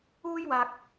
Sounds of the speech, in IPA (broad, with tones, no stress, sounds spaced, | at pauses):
uː˥ j w aː˧ k̚